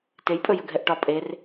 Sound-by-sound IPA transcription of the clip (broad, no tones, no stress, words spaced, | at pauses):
tejpʼɵjə ɡʱɛʔʈɒ pʼer